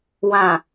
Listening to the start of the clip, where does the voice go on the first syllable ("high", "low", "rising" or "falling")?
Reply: low